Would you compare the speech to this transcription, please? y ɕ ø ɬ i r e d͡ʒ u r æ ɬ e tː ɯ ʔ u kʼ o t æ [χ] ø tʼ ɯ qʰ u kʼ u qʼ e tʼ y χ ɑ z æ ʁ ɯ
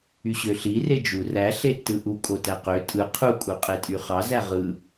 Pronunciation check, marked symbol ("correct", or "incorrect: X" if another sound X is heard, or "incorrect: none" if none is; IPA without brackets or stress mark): incorrect: q